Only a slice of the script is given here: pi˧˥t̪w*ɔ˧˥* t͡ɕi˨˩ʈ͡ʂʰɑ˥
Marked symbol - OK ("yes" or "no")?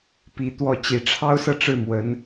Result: no